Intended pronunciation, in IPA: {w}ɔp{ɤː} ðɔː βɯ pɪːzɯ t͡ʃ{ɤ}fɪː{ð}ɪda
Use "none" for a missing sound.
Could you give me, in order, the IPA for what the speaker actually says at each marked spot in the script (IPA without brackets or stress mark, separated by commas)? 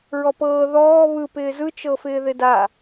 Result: ɹ, ɤː, ɤ, ð